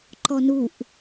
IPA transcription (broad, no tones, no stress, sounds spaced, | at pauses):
ǃ ɔ n u ʔ